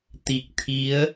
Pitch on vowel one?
low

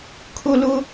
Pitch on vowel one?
high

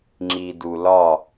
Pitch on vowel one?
low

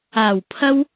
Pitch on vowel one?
low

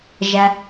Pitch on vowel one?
low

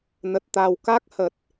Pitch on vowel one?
low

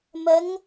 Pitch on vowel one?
rising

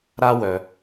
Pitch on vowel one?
high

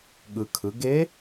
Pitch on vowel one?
low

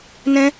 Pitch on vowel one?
high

